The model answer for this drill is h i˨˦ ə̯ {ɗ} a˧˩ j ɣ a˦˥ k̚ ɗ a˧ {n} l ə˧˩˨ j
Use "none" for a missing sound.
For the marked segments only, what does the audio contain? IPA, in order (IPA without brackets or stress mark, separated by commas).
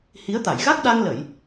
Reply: t̪, ŋ